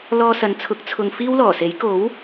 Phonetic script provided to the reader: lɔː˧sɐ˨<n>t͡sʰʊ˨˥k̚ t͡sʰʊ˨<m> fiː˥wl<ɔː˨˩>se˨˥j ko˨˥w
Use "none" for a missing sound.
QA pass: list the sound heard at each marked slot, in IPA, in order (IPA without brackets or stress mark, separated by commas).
n, ŋ, ɔː˨˩